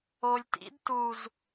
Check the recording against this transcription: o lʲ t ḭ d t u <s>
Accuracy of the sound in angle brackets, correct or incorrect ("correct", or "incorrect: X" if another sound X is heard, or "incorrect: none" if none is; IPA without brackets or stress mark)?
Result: incorrect: z